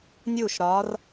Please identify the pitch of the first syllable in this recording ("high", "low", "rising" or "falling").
falling